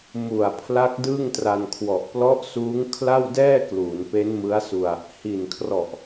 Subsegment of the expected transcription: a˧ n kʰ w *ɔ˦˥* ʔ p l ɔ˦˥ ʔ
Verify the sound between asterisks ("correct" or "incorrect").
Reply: incorrect